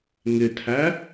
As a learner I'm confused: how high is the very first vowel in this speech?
high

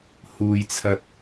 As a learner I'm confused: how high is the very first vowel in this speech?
high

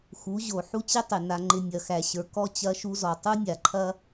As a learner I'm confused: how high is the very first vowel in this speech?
high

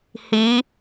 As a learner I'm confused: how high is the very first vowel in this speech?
high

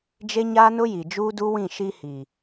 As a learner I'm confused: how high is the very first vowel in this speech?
mid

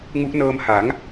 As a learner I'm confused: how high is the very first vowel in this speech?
high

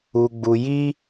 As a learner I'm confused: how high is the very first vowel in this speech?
high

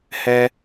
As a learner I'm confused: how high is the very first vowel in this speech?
mid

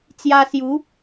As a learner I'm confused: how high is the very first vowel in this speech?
low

